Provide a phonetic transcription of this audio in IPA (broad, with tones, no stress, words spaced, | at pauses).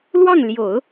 lwɑ˥˩ŋljo˨˩˦ʊ̯